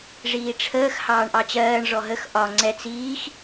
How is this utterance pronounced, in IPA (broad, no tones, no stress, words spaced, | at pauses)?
ʐiːʈ͡ʂʰəːx hɑːɳʔɑt͡ɕɜːɳ ʐɔɦəx ʔɒ ŋ͡ǀɛt͡s iːx